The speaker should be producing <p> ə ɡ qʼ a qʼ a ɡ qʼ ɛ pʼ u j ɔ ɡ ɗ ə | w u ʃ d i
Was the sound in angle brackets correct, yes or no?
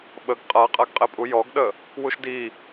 no